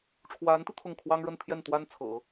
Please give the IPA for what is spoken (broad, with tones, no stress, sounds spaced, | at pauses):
ʈ͡ʂʰ w a˧˥ n t̪ i˧ t̪ʰ ʊ˥˩ ŋ kʰ w ɑ˥ ŋ ɻ ə˥˧ n t̪ʰ j ɛ˥˩ n t̪ w a˥ n t͡sʰ ɤ̰˨˩˦